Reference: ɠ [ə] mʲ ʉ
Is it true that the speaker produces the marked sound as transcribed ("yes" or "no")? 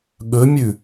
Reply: no